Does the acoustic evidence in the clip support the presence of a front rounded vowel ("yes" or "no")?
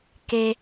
no